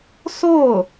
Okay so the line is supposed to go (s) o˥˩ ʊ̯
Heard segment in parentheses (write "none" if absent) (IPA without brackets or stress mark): s